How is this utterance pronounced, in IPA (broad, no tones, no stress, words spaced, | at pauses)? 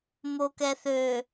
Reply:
mokɛθø